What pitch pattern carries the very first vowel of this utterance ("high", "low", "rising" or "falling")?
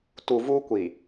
low